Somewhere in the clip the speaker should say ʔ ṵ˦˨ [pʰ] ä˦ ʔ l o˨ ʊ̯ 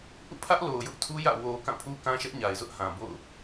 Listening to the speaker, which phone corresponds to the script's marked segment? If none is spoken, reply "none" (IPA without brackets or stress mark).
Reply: pʰ